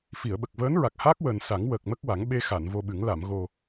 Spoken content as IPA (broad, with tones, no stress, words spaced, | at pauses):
fi˨˩˨ə̯ɓə˨˩k̚vəː˧˥n ɹa˨˩k̚haː˦˥k̚wəː˨˩n sa˨˩˦ŋ wəː˨˩k̚mə˦˥k̚wa˨˩˦ŋ ɓe˧xa˨˩˨n vo˧ɓɨ˨˩˦ŋ la˨˩˨mɣo˨˩